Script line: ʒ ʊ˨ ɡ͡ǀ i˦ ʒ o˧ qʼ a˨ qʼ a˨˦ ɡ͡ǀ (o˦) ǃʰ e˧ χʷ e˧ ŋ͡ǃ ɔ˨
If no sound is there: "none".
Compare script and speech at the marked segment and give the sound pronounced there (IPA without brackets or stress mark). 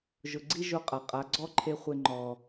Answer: ɔ˦